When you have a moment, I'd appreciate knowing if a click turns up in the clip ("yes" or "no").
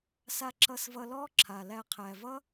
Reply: yes